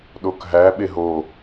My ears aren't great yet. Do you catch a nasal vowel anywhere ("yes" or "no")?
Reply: no